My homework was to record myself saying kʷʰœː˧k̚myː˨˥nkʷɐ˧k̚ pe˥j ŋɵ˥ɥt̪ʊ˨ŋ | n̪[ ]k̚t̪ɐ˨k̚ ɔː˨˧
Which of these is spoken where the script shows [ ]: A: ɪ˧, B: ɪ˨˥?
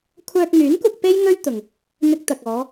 A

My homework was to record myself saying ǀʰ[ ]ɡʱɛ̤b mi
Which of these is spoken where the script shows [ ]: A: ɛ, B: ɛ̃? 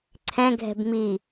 B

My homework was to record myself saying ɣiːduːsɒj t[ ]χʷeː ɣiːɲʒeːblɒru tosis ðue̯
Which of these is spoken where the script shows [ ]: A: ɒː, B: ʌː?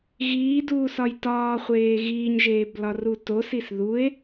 A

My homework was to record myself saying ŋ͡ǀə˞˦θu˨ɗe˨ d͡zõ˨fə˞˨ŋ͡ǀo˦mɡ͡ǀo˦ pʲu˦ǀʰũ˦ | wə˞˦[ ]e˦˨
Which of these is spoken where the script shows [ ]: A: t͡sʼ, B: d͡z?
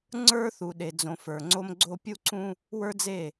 B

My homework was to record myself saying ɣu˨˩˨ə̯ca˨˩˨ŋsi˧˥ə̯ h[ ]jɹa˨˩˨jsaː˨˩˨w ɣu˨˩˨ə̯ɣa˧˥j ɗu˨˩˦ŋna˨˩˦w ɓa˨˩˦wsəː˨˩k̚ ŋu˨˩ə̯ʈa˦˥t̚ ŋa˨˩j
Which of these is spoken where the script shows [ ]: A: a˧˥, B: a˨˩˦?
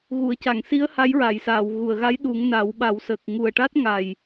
A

